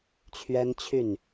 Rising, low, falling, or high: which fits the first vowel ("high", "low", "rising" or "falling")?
high